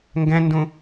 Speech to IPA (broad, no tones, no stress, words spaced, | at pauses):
ŋɡɛ̃ndũ